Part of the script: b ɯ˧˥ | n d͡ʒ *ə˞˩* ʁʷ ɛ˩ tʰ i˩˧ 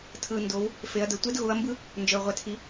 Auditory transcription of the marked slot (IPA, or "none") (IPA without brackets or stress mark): ə˞˩